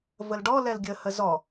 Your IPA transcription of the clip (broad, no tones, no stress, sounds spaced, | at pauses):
v ə l ɖ ɔ l ɛ l ɡʲ ə h ə z ɔ